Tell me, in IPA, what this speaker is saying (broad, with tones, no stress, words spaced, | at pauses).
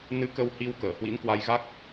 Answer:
nɨ˨˦ kə˧whi˧w kəː˧˩hwḭ˧˥nkwa˧jɣa˦˥k̚